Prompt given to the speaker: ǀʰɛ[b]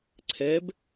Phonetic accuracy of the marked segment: correct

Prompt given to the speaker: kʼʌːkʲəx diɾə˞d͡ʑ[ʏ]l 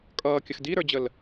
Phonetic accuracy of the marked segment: incorrect: ə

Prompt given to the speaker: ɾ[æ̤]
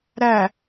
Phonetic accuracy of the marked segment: incorrect: æ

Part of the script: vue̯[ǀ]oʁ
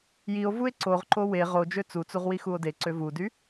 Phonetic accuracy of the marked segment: correct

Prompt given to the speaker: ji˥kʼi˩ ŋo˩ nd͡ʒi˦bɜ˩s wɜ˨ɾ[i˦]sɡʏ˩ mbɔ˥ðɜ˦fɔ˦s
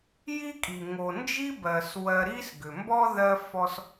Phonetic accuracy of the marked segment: correct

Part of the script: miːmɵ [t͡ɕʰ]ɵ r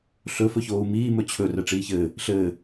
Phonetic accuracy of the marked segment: correct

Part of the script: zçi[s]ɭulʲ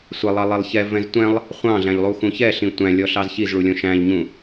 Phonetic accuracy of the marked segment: incorrect: z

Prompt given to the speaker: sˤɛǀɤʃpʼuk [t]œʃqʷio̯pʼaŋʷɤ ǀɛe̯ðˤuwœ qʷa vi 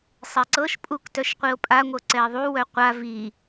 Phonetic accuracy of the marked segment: correct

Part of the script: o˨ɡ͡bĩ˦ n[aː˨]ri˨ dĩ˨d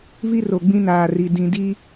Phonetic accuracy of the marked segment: correct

